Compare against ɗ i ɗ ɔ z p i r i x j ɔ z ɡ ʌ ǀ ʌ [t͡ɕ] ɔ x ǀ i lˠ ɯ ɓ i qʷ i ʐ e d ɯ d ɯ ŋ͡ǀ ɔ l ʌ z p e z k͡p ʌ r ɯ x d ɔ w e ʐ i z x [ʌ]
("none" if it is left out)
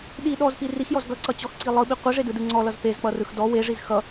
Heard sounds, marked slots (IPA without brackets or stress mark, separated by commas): t͡ɕ, ʌ